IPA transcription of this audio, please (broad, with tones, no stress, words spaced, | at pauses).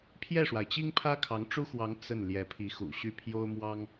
pʰjɛ˥˩ʂwa˩ɪ̯t͡ɕi˥ŋpʰä˥ kʰɑ˧˥ŋʈ͡ʂu˥xwɑ˧˥ŋ t͡sə˥˩n ljɛ˧˥pʰi˧˥xṵ˨˩ɕy˥˩ pʰjo˥ʊ̯ mwɑ˥ŋ